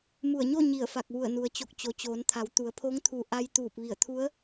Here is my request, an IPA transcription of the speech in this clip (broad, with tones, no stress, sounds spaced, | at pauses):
m u˧˩ ə̯ ɲ o˥˨ ɲ i˧˩ ə̯ f a˧˩ k̚ ʋ u˧˩ ə̯ n u˩ ə̯ t͡ɕ o˧˩ k̚ t͡ɕ o˩˧ t͡ɕ oː˩˧ n t̪ʰ a˩˧ w t̪ u˩˧ ə̯ pʰ o˧˥ ŋ t̪ʰ u˧˩ ʔ a˧ j t̪ uː˧˩ p̚ ʋ i˧˩ ə̯ t̪ʰ u˧˥ ə̯